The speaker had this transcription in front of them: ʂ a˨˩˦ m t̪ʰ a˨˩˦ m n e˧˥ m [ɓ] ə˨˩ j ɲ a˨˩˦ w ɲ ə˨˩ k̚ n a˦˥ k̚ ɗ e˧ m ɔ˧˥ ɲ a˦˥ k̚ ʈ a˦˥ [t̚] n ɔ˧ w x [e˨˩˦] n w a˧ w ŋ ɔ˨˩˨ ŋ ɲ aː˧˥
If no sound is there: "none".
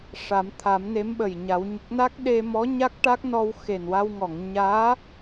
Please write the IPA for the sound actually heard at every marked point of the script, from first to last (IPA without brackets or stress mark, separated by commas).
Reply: ɓ, k̚, e˨˩